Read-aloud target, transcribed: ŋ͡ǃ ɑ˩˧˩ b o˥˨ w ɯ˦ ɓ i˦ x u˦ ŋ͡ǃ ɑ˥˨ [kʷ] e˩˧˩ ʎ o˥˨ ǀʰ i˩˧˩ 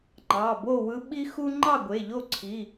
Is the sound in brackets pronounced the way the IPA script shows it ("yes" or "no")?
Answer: no